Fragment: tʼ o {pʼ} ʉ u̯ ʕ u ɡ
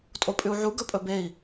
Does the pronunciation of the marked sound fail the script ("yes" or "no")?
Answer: no